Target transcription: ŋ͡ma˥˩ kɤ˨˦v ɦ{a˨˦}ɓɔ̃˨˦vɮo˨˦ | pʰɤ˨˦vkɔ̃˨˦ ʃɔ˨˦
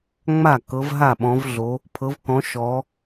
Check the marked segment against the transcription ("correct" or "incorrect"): incorrect